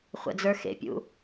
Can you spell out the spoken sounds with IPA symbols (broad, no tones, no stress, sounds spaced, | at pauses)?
χʷ ə̰ d͡z ə˞ x ḛ pʲ ṵ